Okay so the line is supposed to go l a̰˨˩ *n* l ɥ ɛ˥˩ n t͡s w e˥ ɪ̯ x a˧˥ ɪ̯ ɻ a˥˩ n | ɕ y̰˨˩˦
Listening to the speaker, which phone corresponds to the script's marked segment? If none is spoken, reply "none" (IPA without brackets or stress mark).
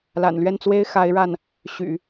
n